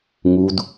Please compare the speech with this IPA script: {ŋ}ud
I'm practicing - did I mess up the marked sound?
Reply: no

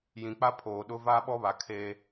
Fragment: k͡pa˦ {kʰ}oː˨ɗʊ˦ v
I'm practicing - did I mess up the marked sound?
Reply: yes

